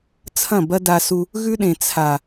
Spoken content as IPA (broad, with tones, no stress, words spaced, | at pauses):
t͡sʰɐ̃˦˨bɐ˦da˧su˧ | ɣʉ˦ɗẽ˨ t͡sʰa˨